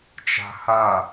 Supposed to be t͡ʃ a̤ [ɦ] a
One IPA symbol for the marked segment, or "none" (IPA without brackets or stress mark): h